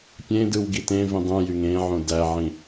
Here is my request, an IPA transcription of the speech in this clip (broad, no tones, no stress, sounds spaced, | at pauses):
pʲ ẽ d ɯ w ɡ i t ẽ v ĩ dˤ ũ j y ŋ ẽ ʕ õ d æ ʕ ĩ